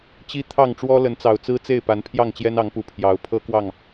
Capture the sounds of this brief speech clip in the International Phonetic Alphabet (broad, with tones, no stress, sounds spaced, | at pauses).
t͡ɕ i˦ t̪ʰ ɑ˥˨ ŋ ʈ͡ʂ w ɔ˦ l ə˨˦ n t͡s ɑ˨˩ ʊ̯ t͡s ɹ̩˦ t͡s e˥˨ ɪ̯ p a˨˦ n pʰ j ɑ˥˨ ŋ t͡ɕ j ɛ˦ n ɑ˨˦ ŋ p u˨˩ pʰ j ɑ˨˦ ʊ̯ pʰ ɤ˦ k w ɑ˥˨ ŋ